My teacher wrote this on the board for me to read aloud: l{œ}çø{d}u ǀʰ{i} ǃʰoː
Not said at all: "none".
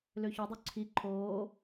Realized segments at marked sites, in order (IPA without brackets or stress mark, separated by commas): ø, dˤ, i